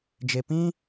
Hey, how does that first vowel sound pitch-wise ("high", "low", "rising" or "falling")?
low